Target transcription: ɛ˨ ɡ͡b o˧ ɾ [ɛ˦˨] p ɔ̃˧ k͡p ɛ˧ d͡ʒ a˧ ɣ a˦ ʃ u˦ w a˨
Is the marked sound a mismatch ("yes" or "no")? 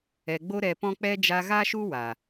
yes